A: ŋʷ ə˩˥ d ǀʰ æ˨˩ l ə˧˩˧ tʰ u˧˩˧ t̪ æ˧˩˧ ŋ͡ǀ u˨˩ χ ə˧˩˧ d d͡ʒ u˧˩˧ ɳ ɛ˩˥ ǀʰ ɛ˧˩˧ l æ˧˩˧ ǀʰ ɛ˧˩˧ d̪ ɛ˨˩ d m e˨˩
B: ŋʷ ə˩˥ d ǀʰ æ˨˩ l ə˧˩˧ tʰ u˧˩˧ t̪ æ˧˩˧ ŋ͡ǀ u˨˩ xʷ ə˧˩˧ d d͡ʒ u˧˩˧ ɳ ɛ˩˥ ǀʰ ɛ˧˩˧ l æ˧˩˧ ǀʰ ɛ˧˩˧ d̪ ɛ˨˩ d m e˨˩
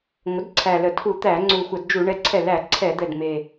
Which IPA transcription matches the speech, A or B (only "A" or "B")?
B